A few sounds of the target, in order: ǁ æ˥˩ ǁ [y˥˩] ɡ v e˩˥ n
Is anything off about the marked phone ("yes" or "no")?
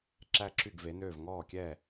no